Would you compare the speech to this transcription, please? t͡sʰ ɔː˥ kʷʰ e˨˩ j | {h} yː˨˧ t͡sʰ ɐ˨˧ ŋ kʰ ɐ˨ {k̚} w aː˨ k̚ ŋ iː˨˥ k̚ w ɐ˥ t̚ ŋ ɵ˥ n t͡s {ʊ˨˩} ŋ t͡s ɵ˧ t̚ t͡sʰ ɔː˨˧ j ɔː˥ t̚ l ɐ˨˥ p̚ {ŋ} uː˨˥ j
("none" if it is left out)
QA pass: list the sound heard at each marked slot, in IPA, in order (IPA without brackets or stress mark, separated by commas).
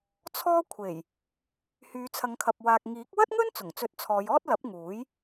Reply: h, p̚, ʊ˨˩, ŋ